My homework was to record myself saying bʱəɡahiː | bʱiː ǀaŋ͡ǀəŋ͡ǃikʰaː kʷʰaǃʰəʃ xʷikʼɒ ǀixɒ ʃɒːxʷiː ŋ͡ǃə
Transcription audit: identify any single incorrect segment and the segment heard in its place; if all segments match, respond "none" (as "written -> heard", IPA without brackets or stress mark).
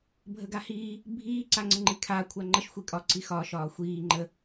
ǃʰ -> ŋ͡ǃ